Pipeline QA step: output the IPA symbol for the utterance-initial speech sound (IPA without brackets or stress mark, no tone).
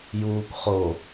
j